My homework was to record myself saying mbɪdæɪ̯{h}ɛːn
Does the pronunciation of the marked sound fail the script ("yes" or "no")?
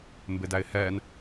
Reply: no